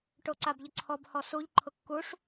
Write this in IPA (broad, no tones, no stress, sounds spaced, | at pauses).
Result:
ʈ o ǀ a b ʎ ə ǀʰ ɔ b h ɔ s u ʎ ǃʰ ʊ kː u ʂ